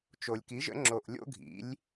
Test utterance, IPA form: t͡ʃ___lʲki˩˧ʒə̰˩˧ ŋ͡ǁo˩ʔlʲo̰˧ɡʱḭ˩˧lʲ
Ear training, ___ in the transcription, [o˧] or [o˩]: o˩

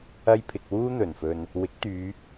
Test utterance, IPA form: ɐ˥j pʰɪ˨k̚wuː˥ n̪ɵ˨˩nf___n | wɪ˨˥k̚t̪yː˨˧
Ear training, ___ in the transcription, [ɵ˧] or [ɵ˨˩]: ɵ˧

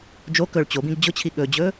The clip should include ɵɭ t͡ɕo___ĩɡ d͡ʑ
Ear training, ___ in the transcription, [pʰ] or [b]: b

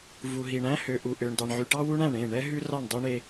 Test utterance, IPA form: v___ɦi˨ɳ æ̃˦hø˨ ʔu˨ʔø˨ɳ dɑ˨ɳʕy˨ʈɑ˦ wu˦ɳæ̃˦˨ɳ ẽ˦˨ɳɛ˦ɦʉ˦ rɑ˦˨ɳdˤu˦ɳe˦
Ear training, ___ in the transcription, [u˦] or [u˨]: u˨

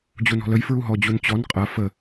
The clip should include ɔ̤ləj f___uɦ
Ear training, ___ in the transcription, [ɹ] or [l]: ɹ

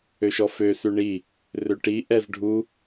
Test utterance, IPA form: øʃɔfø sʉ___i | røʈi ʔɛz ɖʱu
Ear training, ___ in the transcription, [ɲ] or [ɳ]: ɳ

